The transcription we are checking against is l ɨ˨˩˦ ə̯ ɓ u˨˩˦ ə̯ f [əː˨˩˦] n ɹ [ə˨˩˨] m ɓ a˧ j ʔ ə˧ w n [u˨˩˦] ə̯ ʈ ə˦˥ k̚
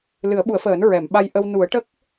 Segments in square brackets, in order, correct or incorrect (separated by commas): correct, incorrect, correct